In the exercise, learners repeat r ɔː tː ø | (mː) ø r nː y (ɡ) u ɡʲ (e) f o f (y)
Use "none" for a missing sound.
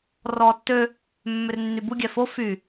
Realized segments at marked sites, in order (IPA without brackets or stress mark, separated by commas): mː, b, ɛ, y